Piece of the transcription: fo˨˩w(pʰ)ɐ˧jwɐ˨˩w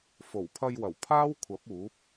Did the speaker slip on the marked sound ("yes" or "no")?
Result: no